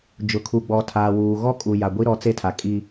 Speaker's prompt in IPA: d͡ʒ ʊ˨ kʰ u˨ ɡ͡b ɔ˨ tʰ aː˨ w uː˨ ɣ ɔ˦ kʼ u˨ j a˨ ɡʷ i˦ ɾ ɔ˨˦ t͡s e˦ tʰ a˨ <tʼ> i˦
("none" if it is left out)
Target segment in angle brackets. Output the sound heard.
kʼ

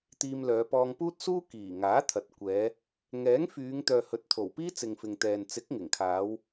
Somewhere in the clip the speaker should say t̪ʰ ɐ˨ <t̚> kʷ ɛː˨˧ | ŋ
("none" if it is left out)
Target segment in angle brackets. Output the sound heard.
t̚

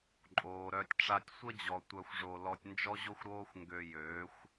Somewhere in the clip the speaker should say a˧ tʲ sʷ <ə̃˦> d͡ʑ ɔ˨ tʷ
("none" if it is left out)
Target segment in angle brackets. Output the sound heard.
ə˦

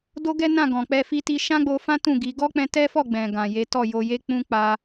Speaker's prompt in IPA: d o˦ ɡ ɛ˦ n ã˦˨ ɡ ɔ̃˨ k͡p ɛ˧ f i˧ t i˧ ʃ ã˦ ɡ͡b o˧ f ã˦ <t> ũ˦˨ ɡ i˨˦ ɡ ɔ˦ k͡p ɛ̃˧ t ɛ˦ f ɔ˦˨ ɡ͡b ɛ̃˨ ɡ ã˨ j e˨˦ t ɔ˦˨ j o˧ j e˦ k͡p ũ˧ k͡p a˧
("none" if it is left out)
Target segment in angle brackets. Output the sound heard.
t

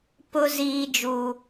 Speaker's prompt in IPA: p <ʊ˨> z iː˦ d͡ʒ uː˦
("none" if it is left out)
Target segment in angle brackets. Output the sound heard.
ʊ˦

